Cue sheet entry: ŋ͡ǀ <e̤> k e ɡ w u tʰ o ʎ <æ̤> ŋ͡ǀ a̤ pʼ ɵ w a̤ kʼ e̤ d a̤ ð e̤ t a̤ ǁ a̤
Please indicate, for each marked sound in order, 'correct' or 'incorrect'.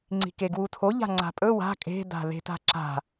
incorrect: i̤, incorrect: a̤

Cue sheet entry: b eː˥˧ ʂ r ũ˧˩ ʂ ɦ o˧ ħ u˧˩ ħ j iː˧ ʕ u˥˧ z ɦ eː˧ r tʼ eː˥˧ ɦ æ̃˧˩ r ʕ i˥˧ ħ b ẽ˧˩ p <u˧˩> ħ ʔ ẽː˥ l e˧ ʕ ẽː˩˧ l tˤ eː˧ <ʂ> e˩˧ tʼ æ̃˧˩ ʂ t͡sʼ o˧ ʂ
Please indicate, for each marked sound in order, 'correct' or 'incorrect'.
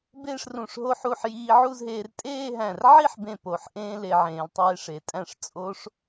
incorrect: o˧˩, correct

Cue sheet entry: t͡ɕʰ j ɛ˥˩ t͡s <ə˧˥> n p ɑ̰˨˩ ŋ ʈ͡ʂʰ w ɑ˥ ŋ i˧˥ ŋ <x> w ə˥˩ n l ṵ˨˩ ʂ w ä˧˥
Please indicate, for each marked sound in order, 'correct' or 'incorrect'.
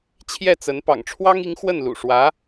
correct, correct

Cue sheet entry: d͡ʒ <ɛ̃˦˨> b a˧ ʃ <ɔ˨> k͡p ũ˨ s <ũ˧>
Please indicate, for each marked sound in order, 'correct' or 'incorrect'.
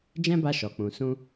incorrect: ɛ̃˦, correct, correct

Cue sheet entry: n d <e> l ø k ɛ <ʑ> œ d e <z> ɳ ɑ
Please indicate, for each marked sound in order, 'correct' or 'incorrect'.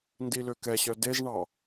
incorrect: i, incorrect: ɕ, correct

